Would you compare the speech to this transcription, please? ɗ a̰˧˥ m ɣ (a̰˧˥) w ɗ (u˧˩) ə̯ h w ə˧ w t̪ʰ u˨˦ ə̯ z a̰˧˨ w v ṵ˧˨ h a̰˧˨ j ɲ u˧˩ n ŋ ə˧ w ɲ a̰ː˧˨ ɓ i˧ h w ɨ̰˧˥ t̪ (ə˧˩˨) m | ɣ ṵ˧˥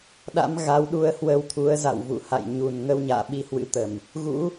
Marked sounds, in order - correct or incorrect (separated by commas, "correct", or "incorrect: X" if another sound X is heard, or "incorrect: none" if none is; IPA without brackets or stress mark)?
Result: incorrect: a˨˦, incorrect: u˧, correct